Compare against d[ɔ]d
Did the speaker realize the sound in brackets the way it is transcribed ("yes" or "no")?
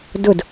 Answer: no